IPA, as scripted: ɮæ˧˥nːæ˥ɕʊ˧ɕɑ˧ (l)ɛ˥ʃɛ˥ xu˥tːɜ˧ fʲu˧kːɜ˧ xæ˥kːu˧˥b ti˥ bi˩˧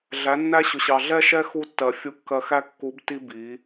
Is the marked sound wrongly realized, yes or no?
yes